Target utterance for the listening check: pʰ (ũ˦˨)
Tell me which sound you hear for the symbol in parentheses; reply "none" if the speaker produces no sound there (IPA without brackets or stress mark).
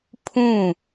ũ˦˨